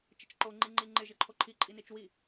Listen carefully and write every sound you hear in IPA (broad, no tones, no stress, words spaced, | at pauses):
t͡ʃɪt͡ʃǃo ŋ͡ǃiŋ͡ǃiŋ͡ǃɪ ʒɪǃʰoǃʰi ǃʼinit͡ʃwi